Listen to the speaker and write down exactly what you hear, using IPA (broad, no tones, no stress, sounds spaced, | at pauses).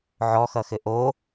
ʕ ɔ x ʌ x ɘ ʔ o